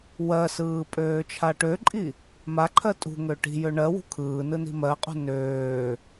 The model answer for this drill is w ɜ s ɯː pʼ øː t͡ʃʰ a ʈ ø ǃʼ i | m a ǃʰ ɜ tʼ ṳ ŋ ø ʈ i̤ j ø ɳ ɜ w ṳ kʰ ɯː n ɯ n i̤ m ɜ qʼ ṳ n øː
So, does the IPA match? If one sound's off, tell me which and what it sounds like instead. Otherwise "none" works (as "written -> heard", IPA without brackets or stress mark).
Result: none